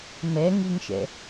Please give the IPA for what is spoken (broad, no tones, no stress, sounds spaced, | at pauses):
m ɛ ŋ i ŋ ʃ ɛ̰